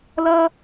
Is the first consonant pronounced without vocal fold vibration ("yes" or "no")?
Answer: no